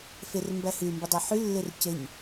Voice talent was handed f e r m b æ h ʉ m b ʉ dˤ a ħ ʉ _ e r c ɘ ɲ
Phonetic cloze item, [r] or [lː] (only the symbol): lː